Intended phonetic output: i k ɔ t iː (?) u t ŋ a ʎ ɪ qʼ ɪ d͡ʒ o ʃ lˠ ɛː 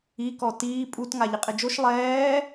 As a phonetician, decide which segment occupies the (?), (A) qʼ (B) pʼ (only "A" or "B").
B